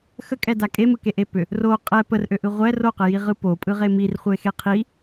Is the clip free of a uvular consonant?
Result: no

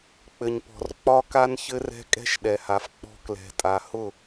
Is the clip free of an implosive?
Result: no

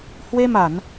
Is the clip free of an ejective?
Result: yes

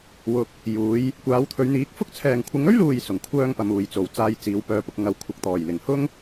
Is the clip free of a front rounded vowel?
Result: no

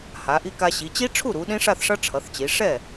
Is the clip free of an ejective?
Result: yes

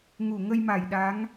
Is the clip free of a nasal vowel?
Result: yes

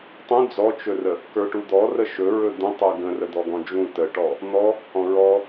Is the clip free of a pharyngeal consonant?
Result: yes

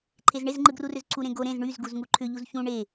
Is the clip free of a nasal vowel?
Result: no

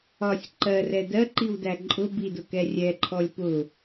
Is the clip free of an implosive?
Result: yes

